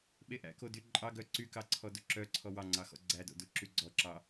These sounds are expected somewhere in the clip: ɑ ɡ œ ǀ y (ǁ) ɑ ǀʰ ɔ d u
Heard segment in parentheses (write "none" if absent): k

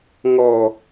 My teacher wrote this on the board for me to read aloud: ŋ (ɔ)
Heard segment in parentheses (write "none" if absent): ɔ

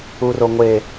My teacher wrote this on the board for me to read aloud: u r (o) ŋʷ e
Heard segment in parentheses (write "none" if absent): o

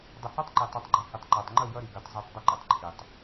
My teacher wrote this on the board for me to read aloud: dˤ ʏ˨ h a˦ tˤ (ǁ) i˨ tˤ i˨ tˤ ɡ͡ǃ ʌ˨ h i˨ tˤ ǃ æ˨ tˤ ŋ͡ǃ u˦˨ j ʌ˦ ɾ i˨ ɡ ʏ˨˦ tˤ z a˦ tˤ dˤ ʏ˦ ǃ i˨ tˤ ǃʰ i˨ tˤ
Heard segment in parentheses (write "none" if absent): ǃ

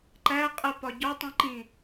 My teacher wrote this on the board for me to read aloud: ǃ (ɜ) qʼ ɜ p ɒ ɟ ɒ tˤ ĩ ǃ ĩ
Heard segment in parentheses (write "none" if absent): æ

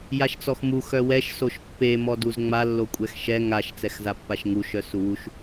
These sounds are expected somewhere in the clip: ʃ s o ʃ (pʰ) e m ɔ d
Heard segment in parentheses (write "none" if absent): pː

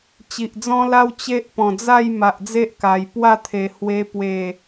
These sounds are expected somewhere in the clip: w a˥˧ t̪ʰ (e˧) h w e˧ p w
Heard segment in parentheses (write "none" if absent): e˨˩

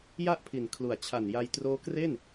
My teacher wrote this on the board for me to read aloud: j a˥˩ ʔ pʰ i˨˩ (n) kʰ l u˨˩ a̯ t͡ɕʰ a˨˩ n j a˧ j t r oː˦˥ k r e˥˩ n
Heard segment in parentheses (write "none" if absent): n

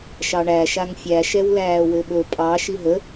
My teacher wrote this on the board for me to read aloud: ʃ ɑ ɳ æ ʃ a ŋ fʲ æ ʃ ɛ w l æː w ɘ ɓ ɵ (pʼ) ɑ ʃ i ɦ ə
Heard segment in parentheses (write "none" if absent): pʼ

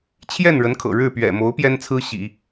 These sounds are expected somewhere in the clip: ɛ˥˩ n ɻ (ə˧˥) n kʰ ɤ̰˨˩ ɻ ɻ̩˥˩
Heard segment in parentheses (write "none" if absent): ə˧˥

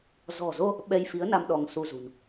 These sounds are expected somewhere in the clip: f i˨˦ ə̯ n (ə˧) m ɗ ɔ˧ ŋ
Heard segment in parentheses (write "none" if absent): a˧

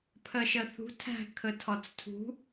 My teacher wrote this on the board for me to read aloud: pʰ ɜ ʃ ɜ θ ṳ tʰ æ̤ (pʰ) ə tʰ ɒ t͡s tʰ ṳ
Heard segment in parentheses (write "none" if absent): kʰ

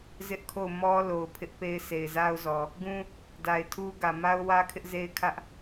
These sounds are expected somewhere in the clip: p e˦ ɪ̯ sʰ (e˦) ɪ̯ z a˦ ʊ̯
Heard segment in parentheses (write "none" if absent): e˨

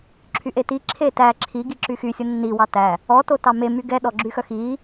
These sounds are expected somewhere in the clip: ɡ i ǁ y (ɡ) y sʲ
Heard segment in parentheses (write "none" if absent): x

